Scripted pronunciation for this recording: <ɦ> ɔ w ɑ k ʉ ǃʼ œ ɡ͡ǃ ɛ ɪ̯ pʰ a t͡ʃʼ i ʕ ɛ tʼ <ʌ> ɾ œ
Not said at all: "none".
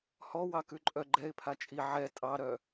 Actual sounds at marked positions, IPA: h, ɑ

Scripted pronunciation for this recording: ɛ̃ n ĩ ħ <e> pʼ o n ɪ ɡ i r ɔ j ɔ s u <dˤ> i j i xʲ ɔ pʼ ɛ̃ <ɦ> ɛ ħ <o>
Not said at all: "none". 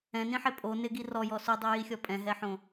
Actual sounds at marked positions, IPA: e, dˤ, ɦ, õ

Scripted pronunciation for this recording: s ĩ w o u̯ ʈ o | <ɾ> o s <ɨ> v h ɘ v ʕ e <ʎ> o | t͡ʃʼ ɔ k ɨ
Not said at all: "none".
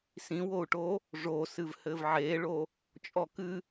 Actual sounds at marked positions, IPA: ʐ, ɨ, ɭ

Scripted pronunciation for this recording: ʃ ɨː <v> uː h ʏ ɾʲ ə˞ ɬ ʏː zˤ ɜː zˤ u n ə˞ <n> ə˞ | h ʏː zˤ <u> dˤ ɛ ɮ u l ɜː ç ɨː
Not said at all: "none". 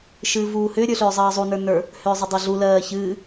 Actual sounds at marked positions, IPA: v, n, ʏ

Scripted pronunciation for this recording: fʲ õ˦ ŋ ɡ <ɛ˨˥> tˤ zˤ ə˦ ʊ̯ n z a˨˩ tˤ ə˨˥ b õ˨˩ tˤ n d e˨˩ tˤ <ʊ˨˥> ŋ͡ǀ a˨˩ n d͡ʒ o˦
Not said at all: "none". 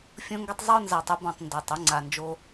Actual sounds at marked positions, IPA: ɛ˦, ʊ˨˥

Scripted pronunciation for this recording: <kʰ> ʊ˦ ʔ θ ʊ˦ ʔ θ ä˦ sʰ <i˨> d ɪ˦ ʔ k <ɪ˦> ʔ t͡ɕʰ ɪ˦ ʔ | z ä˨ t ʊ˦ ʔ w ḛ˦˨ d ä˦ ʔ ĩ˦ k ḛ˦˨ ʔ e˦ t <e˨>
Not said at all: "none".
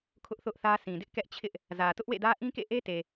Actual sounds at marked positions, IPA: kʰ, ĩ˨, ɛ˦, e˨

